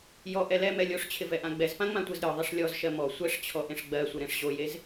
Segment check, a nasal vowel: present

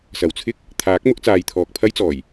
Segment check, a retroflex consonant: absent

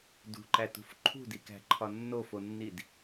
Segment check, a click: present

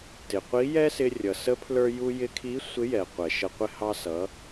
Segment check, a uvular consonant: present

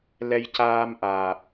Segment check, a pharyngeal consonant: absent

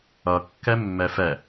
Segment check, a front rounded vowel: absent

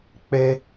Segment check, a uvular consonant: absent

